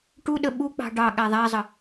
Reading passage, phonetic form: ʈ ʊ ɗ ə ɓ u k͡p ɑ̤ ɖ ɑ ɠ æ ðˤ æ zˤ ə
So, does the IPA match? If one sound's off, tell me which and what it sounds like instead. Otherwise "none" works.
ʊ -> u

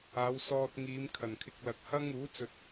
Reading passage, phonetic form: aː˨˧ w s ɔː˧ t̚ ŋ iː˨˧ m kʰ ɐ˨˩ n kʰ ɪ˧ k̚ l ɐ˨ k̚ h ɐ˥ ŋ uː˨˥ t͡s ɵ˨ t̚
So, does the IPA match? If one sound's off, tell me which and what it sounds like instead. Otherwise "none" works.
none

